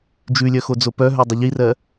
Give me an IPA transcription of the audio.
d͡ʒ ʉ lʲ œ x o d͡z o p œ ɦ œ dˤ ɪ ʎ i r ɜ

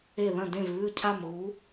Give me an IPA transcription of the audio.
e˧˩ ð ɐ̃˧˩ d ẽ˧˩ v β ʉ˧˩ cʰ a˧˩ m ɣ u˩˧

